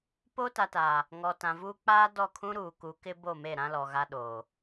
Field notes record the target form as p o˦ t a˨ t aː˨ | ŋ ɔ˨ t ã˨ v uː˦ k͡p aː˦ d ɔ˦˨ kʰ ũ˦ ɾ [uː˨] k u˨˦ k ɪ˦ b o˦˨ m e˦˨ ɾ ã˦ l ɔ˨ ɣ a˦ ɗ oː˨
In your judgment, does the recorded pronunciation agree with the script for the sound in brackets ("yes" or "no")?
yes